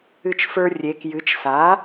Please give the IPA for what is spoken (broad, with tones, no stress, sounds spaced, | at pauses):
ɨ˧ t͡ʃ f ə˞˧ rʲ e˩˧ k j ɨ˩˥ t͡ʃ s a˩˥